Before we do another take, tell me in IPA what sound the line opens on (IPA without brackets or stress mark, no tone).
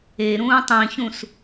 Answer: e